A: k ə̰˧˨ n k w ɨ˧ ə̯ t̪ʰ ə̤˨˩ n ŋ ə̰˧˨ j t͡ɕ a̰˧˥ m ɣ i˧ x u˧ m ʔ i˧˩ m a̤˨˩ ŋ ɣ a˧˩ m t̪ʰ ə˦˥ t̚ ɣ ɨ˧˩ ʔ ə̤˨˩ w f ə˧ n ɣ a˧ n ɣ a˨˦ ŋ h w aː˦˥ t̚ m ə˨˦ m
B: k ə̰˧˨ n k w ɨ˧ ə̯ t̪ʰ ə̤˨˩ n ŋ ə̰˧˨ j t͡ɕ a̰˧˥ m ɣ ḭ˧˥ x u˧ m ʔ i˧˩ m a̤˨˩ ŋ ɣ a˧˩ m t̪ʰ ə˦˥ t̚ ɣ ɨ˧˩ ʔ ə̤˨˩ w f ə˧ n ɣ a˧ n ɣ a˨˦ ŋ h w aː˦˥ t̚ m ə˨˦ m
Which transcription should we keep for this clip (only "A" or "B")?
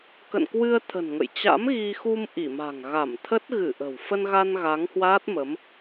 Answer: A